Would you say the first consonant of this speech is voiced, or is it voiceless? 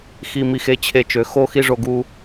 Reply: voiceless